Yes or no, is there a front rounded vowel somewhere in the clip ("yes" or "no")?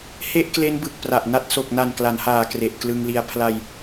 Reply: no